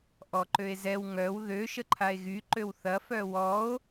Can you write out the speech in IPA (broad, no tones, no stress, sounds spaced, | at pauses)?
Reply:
ʔ ɔ ǃ ø e̯ z ɛ w ŋ œ w ð ø ʃ ə ǃʰ a e̯ ɣ y ǃ ø w θ ɐ f œ w ɔ o̯